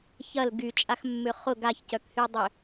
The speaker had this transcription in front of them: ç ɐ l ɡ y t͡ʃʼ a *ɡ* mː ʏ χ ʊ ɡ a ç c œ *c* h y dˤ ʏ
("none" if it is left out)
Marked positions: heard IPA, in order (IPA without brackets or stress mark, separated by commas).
x, k